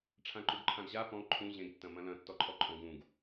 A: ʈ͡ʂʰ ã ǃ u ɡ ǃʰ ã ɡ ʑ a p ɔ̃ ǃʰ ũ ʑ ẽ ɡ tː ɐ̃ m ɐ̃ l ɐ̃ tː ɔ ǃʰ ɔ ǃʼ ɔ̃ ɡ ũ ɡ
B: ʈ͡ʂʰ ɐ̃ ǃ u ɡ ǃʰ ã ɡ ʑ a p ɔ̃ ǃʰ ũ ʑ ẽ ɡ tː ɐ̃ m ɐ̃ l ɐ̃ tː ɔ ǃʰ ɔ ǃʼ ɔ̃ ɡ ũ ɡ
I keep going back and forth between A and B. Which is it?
A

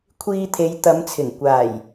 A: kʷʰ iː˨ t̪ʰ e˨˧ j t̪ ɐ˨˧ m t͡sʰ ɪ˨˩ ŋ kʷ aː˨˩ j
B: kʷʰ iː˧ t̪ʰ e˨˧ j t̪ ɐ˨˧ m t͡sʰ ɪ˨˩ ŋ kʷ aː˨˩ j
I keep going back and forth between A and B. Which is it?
B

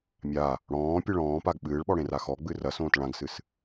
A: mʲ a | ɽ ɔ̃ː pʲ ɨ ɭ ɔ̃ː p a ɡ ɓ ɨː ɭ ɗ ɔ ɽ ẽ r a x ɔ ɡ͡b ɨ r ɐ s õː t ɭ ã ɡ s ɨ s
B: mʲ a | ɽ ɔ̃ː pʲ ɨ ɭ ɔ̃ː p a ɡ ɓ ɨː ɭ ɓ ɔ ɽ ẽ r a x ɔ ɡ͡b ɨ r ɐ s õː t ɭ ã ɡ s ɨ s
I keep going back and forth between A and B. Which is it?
B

